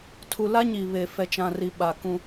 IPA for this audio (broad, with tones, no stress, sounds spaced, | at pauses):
tʰ u˨ l a˦ ɲ i˨ β e˨ f ɛ˨ t͡ʃ ã˨ r i˨ ɓ a˨ k ũ˦